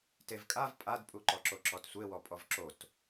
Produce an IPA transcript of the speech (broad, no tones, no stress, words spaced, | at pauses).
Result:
tevkʼav pʼadpʼuǃɔǁo ǁɔtsʷewɔpʼɔv ǁot